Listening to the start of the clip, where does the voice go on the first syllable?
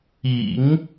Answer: low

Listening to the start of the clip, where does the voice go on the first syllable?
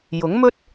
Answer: rising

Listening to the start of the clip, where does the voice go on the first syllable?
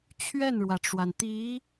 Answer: falling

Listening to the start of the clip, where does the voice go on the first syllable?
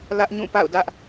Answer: high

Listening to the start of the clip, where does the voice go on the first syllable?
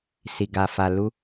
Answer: low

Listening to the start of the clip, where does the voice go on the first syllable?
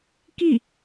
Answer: falling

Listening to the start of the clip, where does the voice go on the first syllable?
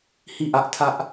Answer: falling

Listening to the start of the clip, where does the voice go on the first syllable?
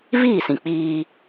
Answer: falling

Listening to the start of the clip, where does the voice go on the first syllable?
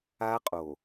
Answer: high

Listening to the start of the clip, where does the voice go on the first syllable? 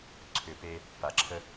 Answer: low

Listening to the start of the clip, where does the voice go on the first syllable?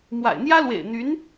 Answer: low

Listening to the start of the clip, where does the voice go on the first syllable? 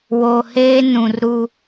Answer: low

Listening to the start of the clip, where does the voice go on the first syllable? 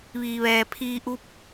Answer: low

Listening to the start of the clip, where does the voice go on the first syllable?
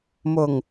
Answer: low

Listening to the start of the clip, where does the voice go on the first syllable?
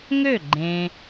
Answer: falling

